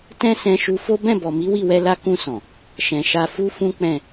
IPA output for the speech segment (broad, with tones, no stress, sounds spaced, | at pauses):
t ɛ̃˦ s ɛ̃˧ ʃ u˧ f o˦ b ɛ̃˦˨ b ɔ˨ m i˨˦ w i˦˨ w ɛ˧ l a˧ k ũ˧ s ɔ̃˨ | ʃ ɛ̃˨ ʃ a˧ f u˦ f ũ˦ k͡p ɛ̃˦˨